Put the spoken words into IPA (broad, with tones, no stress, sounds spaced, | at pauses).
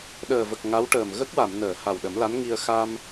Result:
ɗ əː˨˩ v ə˨˩ k̚ ŋ a˧˥ w ʈ əː˨˩ m ɣ ə˦˥ k̚ w a˨˩˨ m n əː˨˩˨ h a˨˩ w ɗ ə˨˩˦ m l a˧˥ n ŋ i˧ ə̯ x a˧ m